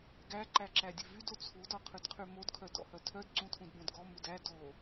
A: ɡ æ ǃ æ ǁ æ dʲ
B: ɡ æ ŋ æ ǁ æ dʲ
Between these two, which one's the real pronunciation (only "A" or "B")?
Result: A